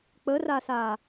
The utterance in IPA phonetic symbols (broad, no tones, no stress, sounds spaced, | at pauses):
k͡p ə r a s a